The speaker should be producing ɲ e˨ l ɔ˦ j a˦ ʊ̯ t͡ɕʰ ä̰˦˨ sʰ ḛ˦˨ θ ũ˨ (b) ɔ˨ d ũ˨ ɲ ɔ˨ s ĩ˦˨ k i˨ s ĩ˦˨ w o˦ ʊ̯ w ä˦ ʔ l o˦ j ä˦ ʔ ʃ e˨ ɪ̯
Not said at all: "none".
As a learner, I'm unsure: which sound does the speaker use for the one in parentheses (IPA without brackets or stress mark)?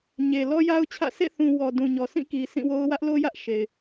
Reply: w